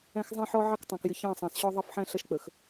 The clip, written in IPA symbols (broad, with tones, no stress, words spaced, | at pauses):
æ̃˦xzˤɛ̃˦ħɔ˦ ʕɑ˦ktˤɑ̃˨kjɪ˨ çɑ̃˦˨sˤɑ̃˨sɕɔ˦ ðˤʌ˦˨fħæ̃˦ ɬʌ˦ʃk͡pə˨x